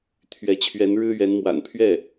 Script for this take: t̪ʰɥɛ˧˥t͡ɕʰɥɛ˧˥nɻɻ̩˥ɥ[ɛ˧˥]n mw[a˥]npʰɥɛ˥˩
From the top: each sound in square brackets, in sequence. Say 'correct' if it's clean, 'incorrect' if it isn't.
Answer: correct, incorrect

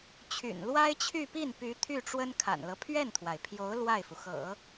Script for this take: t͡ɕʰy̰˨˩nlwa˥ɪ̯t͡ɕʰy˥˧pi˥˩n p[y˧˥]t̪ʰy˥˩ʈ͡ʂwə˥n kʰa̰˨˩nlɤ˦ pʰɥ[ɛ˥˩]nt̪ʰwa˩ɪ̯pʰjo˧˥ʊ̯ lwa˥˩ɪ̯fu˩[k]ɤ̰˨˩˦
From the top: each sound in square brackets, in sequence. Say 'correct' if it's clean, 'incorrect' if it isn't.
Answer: correct, correct, incorrect

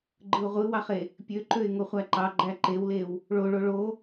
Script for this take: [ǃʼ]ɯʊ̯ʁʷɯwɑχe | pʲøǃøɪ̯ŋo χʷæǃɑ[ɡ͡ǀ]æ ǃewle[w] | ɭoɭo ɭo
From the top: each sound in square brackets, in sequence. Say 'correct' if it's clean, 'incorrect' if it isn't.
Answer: incorrect, incorrect, correct

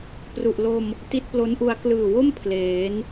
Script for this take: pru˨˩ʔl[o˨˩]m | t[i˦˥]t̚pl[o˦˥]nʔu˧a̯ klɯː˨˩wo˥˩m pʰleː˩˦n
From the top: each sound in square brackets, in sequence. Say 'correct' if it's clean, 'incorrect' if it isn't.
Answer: incorrect, correct, correct

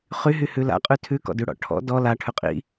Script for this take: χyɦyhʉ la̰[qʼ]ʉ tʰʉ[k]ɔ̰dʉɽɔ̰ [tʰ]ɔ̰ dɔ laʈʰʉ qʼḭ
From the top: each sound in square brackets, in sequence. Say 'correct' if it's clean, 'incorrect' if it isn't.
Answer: correct, correct, incorrect

